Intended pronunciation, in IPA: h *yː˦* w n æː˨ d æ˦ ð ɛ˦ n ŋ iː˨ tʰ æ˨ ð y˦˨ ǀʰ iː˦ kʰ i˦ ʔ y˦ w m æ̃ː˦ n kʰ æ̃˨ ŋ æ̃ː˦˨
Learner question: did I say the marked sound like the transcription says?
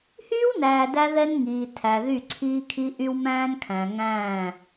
yes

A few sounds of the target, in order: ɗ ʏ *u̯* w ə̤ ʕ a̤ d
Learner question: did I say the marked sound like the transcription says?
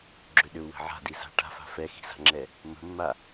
yes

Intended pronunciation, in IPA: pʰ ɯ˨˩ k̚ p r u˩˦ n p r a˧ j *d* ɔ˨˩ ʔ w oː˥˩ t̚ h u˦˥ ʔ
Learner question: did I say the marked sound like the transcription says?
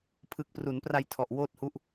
no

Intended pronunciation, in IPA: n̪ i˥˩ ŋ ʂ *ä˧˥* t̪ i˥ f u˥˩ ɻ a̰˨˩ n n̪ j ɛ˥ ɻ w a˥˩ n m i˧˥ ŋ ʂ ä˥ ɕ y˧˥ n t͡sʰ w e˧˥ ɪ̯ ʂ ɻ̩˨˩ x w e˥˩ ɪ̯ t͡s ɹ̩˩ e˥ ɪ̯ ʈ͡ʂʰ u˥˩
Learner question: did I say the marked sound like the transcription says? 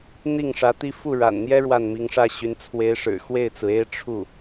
yes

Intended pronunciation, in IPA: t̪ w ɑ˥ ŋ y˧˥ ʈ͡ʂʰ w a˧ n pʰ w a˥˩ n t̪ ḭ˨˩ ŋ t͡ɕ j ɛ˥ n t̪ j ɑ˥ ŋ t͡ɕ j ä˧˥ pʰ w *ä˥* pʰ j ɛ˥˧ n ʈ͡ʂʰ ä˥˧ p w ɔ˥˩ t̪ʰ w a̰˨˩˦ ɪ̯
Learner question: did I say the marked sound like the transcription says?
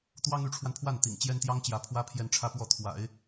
yes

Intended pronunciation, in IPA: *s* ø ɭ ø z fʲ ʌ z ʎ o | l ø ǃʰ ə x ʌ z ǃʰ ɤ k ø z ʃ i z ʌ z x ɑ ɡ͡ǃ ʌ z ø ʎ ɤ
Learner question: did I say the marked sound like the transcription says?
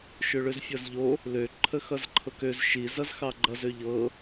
no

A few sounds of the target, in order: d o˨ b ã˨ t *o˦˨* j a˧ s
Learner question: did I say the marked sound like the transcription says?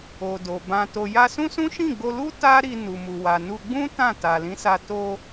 no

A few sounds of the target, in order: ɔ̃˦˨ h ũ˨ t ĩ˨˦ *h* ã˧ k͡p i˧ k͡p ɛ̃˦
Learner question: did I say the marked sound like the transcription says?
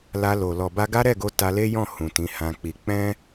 yes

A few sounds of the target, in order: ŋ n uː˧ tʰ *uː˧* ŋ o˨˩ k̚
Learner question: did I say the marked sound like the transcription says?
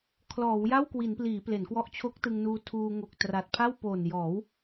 yes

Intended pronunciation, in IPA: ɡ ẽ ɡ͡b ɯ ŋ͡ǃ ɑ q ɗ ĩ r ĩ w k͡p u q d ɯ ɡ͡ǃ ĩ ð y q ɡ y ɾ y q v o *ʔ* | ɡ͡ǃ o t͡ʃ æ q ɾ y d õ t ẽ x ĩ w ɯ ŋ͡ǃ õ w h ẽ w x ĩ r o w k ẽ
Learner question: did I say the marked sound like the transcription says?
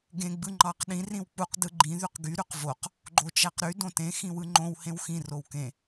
no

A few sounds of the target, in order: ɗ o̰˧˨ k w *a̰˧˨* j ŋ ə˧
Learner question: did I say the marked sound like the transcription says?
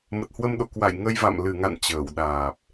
yes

